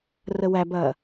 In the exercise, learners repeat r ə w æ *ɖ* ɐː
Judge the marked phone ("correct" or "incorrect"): incorrect